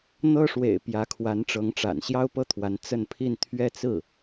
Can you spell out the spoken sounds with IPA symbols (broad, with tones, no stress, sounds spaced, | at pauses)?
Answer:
n̪ ɤ˥ ʂ w ḛ˨˩ ɪ̯ p j ä˧˥ kʰ w a˧˥ n ʈ͡ʂ ɤ˧˥ ŋ ʈ͡ʂ a̰˨˩ n ɕ j ɑ˥ ʊ̯ p ɤ˥˩ t̪ʰ w a˧˥ n t͡s ə˥˧ n pʰ i˥˧ n t̪ʰ ɥ ɛ˥˧ t͡s ɹ̩˥˩